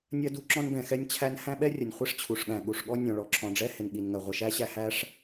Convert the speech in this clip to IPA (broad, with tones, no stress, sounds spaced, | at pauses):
nʲ ɜ˥ d u˥ ǁ ɔ̃˥ n b ɛ̃˩ x ɛ˥ nʲ t͡ɕʰ æ˥ n h æ̃˥ ɓ ɛ˥ rʲ ə˩ nʲ χʷ i˥ ʂ t͡ɕʰ u˩ ʂ ɠ æ̃˩ ɠ u˩ ʂ ɠ ɔ˥ nʲ ɔ̃˩ ɭ ɔ˩ ǁʰ ɔ̃˩ ɖ͡ʐ ɛ˥ h ɪ˩ n ɠ i˩ n ŋ ɜ˩ ʁʷ ɪ˩ ʃ æ˥ ɕ æ˥ h æ˥ ʂ